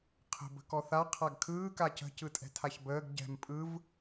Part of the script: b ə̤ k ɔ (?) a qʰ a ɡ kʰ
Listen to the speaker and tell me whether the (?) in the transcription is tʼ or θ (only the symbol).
θ